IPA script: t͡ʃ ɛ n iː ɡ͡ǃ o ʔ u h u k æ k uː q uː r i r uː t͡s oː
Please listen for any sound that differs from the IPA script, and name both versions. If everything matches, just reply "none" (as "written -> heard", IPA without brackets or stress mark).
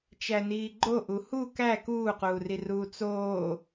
ɛ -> æ